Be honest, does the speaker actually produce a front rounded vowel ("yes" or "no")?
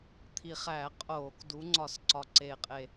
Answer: no